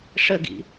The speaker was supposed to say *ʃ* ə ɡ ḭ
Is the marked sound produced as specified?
no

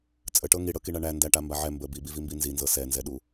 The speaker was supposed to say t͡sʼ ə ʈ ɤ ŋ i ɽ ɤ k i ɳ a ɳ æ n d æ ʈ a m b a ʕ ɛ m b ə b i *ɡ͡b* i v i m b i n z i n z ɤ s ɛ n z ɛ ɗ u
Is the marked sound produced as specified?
no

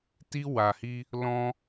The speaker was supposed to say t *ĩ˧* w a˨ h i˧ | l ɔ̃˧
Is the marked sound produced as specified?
no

